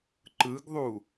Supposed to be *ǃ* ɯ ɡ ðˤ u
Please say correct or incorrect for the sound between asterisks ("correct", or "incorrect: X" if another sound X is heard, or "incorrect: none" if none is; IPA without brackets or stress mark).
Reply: correct